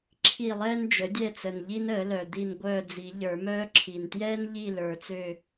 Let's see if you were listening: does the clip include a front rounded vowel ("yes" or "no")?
yes